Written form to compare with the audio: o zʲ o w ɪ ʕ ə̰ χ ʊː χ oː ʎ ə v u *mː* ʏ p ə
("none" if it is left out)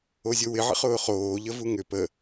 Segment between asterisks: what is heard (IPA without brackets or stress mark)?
ŋ